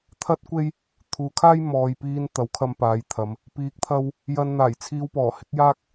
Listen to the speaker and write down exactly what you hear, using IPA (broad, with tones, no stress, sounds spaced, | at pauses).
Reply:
t̪ʰ ɐ˥ t̚ kʷ e˥ j | t̪ʰ uː˨ kʰ aː˥ j m ɔː˨ j p iː˧ n t̪ ɐ˨˥ w kʰ ɐ˧ m p aː˨˧ j t̪ʰ ɐ˨˧ m | p iː˨˥ k̚ t̪ʰ ɐ˧ w | j ɐ˧ n n̪ aː˨˩ j t͡sʰ iː˧ w p ɔː˨˩ h ɪ˨˥ k̚ j aː˥ k̚